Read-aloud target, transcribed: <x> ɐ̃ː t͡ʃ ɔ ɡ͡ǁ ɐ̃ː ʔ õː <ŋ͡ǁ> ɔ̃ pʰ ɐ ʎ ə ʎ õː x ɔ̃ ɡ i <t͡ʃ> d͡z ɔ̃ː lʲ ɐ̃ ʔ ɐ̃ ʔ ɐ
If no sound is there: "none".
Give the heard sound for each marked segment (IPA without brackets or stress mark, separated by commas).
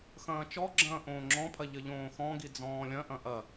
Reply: x, ŋ͡ǁ, none